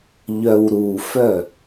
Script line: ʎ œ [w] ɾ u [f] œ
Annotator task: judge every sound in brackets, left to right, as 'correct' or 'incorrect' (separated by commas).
correct, correct